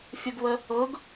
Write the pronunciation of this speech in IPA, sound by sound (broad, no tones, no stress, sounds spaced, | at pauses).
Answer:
fʲ ə ɡ β ə | ɤ ɡ